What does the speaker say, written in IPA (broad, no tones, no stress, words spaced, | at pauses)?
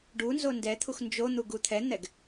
ɖu nzondɛt̪ʰux nd͡ʒo n̪uɡut̪ʰɛn̪ɛɡ